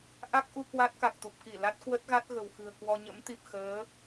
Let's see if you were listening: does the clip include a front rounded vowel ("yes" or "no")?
no